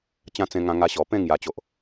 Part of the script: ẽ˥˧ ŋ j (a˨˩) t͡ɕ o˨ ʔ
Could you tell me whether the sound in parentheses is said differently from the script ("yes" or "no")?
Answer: no